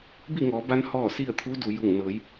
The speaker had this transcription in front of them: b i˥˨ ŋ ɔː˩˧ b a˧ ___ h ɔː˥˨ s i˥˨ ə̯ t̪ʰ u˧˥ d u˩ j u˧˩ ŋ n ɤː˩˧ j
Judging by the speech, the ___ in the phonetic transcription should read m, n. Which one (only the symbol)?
n